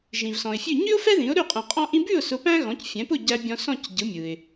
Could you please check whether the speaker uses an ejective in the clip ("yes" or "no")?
yes